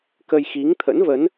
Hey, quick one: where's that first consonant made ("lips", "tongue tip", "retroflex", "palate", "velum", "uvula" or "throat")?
velum